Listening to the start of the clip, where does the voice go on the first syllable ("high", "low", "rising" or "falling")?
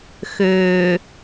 low